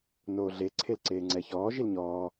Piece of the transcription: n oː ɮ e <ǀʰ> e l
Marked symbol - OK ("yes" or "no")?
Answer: yes